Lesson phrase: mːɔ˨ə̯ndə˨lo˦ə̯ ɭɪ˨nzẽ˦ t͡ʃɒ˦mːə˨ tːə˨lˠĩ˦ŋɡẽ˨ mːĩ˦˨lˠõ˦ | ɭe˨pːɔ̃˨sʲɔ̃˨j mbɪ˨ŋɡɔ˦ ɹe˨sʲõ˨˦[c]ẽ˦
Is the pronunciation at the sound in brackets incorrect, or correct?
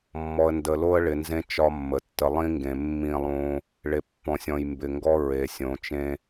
incorrect